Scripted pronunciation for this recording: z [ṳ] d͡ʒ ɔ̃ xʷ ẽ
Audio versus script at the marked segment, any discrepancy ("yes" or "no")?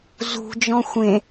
no